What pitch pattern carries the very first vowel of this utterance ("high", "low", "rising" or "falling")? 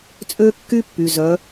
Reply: high